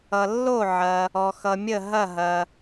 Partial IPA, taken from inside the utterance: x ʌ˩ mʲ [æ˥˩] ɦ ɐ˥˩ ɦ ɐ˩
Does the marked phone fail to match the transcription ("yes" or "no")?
yes